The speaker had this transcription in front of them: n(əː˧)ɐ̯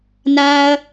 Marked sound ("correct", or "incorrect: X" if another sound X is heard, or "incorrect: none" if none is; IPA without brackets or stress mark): incorrect: aː˧